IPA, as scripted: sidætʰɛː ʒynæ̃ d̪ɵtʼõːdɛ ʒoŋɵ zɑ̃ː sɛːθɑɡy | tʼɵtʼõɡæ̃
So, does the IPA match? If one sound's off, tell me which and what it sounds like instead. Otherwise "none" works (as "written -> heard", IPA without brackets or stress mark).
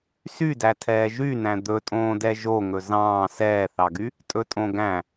i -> y